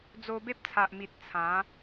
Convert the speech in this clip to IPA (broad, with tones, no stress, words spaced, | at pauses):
d͡zo˧be˦p̚t͡sʰa˨ʔmi˨t̚ t͡sʰã˨˦